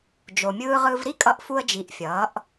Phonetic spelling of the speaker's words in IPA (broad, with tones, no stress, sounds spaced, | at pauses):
d͡ʒ o˩ mʲ ɯː˧ ʁ ɯ˧ v ɾ i˥ kʼ ʌ˧˥ ʔ f u˧ ə̯ d͡ʒ i˩˧ ʔ fʲ ʌː˩˧ ʔ